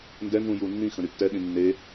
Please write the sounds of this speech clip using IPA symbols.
n d ɛ n z ũ j u nː ĩ x ə̃ ɾ y tː ɛ ɗ ĩ nː e

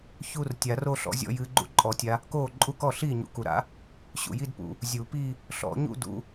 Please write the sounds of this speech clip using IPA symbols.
ç u˥˧ r tʲ a˨˩˦ r o˥˧ ɬ ɔ̰˨˦ zʲ ɔ̰˥˧ j ɨː˨˦ ɡ͡ǃ ṵ˦˥ ǃʼ ɔ˨˩˦ tʲ a˨˦ | k oː˥˩ ǃʼ u˦˥ k ɔ˥˩ ɬ iː˥˩ ɲ ṵ˨˩˦ k u˩ ɾ a̰˨˦ | ɕ ṵ˩ j i˥˧ d p ṵ˩ | zʲ u˨˩˦ p i˥˧ | ɬ ɔ̰˨˩˦ ɲ ṵ˥˧ d ṵ˨˦

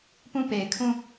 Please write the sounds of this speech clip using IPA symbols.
p ũ˦˨ p e˨ ɪ̯ kʰ ũ˦˨

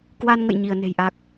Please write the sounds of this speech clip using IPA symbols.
k w a˧ n ŋ ə̰˧˨ j ɲ i˧˩ ə̯ n e̤˨˩ j ʔ a˨˩ k̚

